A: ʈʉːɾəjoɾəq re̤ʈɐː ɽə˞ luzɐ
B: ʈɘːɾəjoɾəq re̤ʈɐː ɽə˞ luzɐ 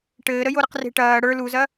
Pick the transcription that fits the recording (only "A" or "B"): B